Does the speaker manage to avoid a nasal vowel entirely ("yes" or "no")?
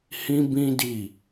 no